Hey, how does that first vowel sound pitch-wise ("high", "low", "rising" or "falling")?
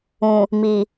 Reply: low